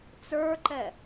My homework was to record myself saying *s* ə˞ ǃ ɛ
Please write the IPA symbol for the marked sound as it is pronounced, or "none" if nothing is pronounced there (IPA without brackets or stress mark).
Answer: t͡s